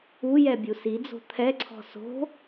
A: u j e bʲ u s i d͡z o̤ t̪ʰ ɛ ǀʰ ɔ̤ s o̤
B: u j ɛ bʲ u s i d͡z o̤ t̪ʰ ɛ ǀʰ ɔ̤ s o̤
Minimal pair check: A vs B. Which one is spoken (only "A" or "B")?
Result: B